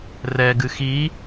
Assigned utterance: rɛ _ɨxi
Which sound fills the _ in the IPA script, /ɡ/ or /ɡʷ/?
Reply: ɡ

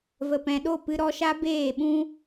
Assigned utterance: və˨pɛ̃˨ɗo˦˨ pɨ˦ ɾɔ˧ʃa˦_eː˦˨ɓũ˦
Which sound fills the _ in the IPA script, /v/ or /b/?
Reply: b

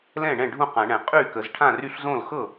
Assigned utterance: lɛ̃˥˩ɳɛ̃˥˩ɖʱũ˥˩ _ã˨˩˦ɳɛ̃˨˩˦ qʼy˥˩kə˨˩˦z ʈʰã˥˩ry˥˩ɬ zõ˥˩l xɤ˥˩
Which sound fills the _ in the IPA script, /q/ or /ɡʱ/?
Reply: q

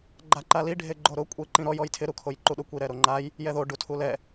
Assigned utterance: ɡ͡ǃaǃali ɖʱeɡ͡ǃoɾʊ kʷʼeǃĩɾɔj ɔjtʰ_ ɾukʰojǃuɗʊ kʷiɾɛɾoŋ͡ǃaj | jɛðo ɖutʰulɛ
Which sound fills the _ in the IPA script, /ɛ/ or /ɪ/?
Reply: ɪ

